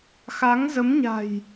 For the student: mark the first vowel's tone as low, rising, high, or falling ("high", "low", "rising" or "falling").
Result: rising